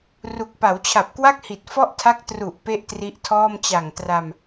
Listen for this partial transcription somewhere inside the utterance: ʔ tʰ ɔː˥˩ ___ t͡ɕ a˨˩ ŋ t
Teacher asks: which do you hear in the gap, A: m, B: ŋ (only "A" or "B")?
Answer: A